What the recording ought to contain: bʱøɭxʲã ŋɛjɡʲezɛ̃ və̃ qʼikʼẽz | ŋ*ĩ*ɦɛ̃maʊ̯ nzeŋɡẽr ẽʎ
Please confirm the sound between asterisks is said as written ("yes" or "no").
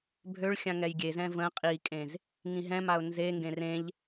yes